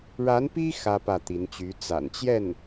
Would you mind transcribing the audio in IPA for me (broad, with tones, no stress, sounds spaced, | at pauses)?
ɻ a˧˥ n p i˥ x ä˥ p ä˥˩ t̪ i˧˥ n t͡ɕ y˧˥ t͡s a̰˨˩ n t͡ɕ j ɛ˥˩ n